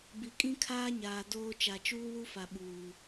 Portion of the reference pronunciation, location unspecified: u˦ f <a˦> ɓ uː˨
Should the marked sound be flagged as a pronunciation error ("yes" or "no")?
yes